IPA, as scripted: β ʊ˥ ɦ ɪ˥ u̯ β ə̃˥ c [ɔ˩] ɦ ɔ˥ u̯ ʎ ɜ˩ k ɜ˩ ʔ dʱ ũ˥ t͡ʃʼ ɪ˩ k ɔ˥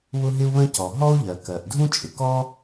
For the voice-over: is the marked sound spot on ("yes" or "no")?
yes